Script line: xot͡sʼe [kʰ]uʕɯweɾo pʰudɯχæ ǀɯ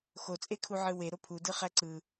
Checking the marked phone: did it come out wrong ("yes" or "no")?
no